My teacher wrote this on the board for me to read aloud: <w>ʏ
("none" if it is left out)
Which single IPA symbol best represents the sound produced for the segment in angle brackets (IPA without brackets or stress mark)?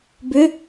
b